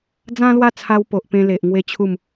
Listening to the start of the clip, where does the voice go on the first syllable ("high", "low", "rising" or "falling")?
high